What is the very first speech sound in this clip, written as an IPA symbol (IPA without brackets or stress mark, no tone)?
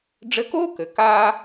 ɖ͡ʐ